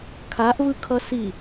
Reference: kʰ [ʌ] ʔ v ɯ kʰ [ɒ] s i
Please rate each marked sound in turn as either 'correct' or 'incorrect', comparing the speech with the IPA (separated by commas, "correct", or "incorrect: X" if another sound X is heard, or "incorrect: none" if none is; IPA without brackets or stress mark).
incorrect: a, incorrect: ʌ